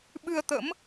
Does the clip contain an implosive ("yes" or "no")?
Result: yes